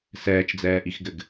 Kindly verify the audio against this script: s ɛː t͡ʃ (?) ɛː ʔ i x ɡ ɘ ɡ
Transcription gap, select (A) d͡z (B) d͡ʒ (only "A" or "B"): A